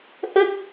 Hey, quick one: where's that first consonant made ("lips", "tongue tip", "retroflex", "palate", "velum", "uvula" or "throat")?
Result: throat